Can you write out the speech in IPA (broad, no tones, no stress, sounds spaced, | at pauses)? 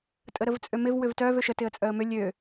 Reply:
tʼ ə ɾ ə v t͡sʼ ø m ɪ v w ʏ v t œ v ø ʃ ə t ɪ ə̯ t͡sʼ œ ə̯ m ʏ lʲ ø